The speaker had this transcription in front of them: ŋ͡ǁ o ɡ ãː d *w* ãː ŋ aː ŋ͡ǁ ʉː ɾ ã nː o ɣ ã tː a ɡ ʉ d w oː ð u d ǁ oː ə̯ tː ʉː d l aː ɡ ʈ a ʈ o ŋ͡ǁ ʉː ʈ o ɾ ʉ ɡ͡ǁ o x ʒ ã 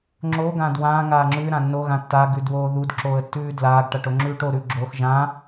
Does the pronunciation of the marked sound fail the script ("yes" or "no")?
no